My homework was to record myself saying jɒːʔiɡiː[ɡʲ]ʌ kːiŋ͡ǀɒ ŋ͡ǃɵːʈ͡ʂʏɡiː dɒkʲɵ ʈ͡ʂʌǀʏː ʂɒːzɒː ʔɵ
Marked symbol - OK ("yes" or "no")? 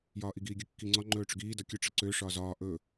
yes